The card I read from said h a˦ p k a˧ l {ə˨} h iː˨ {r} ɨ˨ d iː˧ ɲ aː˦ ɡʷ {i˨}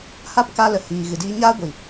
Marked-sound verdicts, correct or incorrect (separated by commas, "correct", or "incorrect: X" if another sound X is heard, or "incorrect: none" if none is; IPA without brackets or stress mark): correct, incorrect: ɣ, correct